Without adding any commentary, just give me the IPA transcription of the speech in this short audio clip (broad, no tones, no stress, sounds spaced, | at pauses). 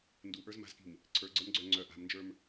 n d u ʔ ə˞ z m a̤ z k i̤ m | ǀʰ ə˞ ɡ͡ǀ ə˞ m ɡ͡ǀ œ ŋ͡ǀ œ ʔ a̤ m n d͡ʒ ə˞ m